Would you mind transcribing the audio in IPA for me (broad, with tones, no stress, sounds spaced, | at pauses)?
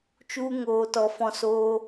t͡ʃ u˧ ŋ oː˨ t ɔ˨ f ɔ̃˧ s oː˧